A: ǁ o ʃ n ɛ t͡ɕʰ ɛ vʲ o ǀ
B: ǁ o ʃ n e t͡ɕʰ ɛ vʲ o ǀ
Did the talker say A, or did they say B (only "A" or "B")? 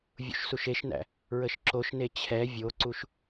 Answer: B